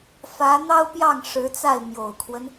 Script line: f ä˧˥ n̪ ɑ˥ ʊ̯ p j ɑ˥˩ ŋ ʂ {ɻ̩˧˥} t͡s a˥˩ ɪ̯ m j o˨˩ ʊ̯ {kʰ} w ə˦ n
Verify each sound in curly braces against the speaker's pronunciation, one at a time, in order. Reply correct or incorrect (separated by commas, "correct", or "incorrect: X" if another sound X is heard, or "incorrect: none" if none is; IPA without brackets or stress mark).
correct, correct